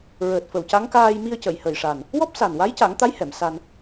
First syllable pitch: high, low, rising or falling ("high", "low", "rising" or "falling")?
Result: low